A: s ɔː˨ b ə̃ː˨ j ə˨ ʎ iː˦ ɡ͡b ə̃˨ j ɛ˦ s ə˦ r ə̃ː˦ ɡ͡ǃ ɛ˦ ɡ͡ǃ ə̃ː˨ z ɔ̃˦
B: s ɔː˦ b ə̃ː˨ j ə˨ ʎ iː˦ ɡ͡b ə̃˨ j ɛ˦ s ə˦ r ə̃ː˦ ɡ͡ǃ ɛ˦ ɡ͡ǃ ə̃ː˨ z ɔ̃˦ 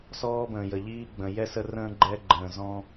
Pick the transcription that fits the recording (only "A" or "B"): B